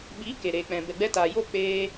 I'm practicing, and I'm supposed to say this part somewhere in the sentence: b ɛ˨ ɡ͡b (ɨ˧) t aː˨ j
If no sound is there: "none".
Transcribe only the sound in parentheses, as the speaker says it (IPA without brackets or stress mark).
ɛ˧